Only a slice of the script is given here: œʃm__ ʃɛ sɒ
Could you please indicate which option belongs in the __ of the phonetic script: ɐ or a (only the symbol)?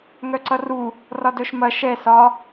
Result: ɐ